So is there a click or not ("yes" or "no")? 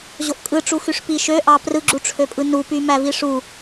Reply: yes